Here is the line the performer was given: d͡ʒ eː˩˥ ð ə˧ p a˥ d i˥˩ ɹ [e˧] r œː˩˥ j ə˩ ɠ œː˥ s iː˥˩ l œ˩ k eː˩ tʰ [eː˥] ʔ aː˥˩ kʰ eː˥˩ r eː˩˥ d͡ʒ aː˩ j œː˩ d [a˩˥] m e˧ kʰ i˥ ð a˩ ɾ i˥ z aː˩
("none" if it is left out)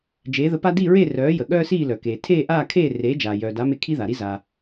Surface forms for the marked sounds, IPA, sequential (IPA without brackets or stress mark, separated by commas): e˥˩, eː˥˩, a˩˥